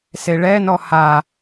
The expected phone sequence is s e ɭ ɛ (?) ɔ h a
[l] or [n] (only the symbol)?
n